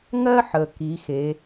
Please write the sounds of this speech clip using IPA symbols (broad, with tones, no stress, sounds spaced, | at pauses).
ŋ ɜ˥ ħ ə˩ k i˩˧ x e˩˧